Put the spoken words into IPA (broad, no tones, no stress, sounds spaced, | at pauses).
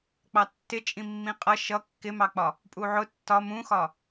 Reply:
k͡p ɑ tː ɪ t͡ʃʼ ĩ mː ĩ qʼ ʌ ʃ ʌ kː ɪ m ɑ k͡p ɒ | pʼ u ʕ ʊ tː ɒ m ũ x ɒ